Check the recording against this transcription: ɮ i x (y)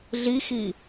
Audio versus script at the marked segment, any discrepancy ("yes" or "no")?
yes